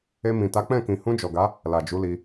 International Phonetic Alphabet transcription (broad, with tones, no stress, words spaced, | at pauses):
e˧mĩ˨ta˨˦ k͡pɛ̃˦˨kĩ˨ hũ˧d͡ʒɔ˨ɡa˨˦ | la˨d͡ʒu˨˦li˧